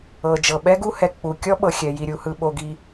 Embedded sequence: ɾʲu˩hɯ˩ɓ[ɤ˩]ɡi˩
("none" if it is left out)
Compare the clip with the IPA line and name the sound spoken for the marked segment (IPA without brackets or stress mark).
o˩